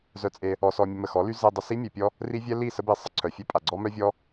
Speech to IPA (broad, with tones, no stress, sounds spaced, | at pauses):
z œ˧ t͡sʼ e˧ | ɔ˧ s ɔ˧ mʲ ə˧ m ə˨ x ɔ˨˦ l y˦ z e˧ dˤ ə˧ s i˦ mʲ œ˧ pʲ ɔ˦ | r i˦ vʲ ɛ˦ l i˦˨ s ə˦ b i˧ sˤ ə˧ ǀʰ œ˨ fʲ œ˦ pʼ a˨ ɡ͡ǀ ɔ˦ m œ˦ vʲ ɔ˦